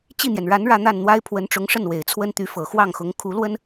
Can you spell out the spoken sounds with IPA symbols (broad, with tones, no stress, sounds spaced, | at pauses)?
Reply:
t͡ɕ i˥˩ n̪ j ɛ˩ n ɻ a˧˥ n ɻ ä˥˧ n̪ a˥˩ n n̪ w a˥ ɪ̯ pʰ w ə˧˥ n ʈ͡ʂ ʊ˧˥ ŋ ʂ ə˥˩ n w e˨˩ ɪ̯ t͡sʰ w ə˥ n t̪ y˧˥ f ɤ˨˩ x w ɑ˥˩ ŋ x ʊ˧˥ ŋ kʰ u˧˥ l w ə˥ n